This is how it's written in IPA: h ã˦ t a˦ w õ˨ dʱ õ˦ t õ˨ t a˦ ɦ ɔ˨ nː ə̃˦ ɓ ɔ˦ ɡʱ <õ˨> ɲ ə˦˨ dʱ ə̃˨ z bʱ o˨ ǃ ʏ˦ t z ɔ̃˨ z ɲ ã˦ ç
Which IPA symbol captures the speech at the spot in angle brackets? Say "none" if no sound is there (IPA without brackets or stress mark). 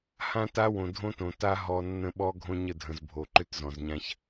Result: õ˦